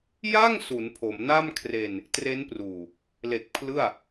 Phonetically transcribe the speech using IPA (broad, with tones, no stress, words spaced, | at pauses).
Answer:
ja˥˩ŋ su˩˦npʰo˩˦m na˥˩mkʰre˧n | tre˦˥npruː˨˩ | le˨˩k̚ pʰlɯ˥˩a̯